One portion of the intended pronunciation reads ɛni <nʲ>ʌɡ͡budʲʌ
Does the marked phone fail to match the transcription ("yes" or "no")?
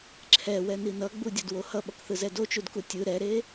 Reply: yes